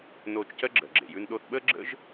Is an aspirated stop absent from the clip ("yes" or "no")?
yes